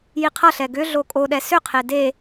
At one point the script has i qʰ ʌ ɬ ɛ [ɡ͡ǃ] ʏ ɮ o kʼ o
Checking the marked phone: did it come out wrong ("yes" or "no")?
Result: yes